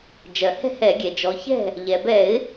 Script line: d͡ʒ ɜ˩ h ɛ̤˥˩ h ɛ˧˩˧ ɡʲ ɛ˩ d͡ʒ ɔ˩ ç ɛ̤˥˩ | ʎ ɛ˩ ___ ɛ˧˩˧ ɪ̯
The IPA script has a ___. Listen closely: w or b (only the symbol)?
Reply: b